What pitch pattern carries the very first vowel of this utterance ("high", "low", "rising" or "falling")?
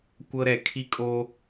high